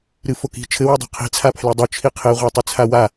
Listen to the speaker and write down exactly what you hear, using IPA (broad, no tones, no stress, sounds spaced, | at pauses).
ɾ ɨ f o k i̤ t͡ʃʰ ɘ w ɘ dˤ e̤ qʰ i̤ t͡sʰ a pʰ l e dˤ o t͡ʃʰ i qʰ e ʁʷ a tˤ ɨ t͡sʰ a w a